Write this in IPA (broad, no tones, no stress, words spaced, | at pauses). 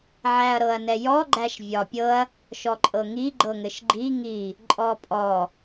ʕæɐ̯ɾɤɐ̯nɛjɔ ɡ͡ǃæʃvʲɒpʲɤɐ̯ | ʃɔǃʼɤŋi ɡ͡ǃɤŋɘʃɡ͡ǃi ŋi | ǃʼɔpʼɔ